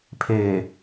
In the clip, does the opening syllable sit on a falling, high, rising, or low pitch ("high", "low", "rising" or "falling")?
low